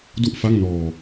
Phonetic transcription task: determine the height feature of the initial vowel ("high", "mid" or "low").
high